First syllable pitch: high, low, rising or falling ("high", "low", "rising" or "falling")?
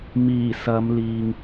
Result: low